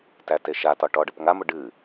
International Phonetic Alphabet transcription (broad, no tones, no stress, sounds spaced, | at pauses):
t æ t e ʃ a t ɒ ʈ ɔ ɖ ə p ŋ a m ʊ ɖ ɨ